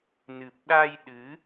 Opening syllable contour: low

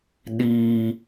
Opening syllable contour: low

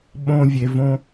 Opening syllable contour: high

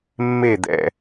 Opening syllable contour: falling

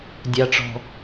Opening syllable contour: low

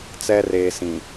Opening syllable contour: high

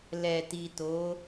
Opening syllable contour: low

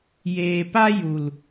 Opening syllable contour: low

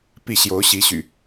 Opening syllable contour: falling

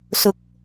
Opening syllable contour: rising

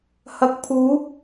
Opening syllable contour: low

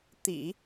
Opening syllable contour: low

